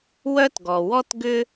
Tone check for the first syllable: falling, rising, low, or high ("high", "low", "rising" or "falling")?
high